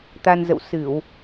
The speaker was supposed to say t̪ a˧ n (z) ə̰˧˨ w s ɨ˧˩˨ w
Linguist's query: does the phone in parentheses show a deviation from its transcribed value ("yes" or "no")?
no